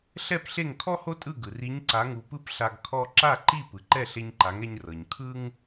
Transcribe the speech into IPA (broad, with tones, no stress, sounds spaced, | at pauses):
ɬ ɛ˥˩ p ɬ e˥˩ ŋ kʰ ɔ˥ h o˥ tʼ ɯ˥˩ ɡ ɯ˩ r i˩˥ ɲ ǀ a˩˥ ŋ u˩ p ɯ˥ p ɬ a˧ ɡ kʰ ɔ˧ ǁ a˥˩ ǃ i˥˩ p ɯ˩ ǃ ɛ˥˩ ɬ e˧ ɲ ǃ a˩˥ ŋ ɛ˧ ɲ r ɤ˩ ɲ kʰ ɯ˥ ŋ